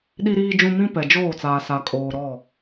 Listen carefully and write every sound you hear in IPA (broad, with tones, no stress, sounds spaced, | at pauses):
ɗ i˨ ɾ iː˨ d͡ʒ ũ˨ m ĩ˦ p ɛ˨ d͡ʒ oː˦˨ t͡s aː˨ s a˨ kʼ oː˨ ɾ ɔ˦˨